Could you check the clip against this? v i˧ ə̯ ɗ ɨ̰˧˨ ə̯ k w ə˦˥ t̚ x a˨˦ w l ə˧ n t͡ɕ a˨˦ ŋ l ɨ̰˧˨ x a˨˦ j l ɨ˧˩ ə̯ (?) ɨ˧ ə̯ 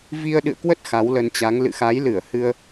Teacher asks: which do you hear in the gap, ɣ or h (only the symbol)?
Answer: h